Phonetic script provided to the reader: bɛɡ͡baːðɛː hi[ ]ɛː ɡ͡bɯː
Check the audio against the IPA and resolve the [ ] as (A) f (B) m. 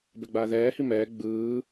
B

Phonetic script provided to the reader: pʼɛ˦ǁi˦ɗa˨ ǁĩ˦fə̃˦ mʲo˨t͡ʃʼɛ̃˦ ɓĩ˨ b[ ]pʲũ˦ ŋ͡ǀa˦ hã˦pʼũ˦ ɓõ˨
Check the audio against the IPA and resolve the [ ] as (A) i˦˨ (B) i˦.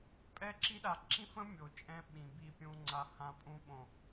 A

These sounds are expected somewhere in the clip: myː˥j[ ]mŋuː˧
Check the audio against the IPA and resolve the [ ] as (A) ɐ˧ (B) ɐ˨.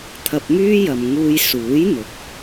B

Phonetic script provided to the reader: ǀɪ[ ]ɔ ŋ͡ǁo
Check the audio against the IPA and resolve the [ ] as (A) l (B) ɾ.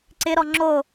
B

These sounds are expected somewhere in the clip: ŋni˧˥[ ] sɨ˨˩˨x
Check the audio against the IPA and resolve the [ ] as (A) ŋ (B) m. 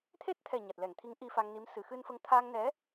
B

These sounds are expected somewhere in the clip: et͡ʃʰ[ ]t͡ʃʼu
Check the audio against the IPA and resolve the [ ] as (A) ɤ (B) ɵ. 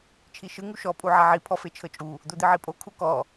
A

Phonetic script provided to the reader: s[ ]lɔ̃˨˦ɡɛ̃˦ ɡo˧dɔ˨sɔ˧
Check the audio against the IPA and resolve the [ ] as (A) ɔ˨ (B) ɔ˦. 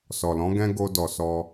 A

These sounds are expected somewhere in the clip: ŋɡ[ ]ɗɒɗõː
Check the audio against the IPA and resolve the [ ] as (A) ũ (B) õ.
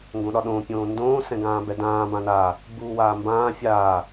B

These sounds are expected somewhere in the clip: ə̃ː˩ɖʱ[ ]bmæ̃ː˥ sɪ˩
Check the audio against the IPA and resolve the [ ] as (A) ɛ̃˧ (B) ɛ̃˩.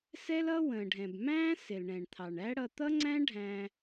B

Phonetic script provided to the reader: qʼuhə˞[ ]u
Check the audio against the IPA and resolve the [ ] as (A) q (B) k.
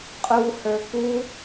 B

